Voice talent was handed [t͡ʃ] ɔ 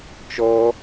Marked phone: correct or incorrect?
correct